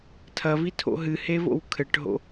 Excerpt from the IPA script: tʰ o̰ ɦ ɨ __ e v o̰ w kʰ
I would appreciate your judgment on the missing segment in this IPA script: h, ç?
h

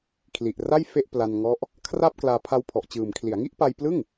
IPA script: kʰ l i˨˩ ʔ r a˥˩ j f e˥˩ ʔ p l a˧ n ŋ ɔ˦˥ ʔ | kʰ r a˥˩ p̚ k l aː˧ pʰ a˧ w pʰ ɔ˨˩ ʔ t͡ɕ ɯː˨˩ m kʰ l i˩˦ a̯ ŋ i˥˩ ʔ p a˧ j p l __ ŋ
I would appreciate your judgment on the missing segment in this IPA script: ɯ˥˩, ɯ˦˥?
ɯ˥˩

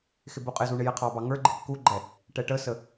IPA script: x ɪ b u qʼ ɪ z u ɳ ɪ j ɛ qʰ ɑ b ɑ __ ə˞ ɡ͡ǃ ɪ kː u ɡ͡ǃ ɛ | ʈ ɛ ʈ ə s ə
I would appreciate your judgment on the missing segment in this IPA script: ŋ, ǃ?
ŋ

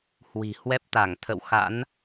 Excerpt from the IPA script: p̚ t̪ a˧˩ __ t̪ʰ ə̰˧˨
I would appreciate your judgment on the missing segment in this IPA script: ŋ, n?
ŋ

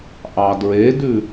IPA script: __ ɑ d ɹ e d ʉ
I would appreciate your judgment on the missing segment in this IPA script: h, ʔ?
ʔ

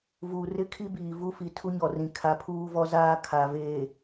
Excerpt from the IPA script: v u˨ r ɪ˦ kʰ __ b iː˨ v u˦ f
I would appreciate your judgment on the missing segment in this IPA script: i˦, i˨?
i˦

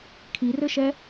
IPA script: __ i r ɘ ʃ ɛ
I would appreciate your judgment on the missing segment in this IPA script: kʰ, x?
kʰ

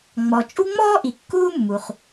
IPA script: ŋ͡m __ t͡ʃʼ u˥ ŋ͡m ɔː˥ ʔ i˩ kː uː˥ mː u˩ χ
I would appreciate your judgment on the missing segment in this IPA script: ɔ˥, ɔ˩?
ɔ˩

